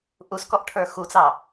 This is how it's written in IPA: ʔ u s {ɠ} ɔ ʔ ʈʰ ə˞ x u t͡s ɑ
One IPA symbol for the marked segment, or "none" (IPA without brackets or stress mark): k